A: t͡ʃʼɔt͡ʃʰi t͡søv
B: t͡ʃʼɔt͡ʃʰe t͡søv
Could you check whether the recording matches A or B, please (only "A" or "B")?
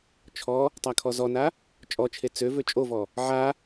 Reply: B